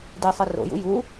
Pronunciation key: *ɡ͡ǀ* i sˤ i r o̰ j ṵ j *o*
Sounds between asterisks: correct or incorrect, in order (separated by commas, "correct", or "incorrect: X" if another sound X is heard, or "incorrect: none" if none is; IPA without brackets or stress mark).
incorrect: d, incorrect: u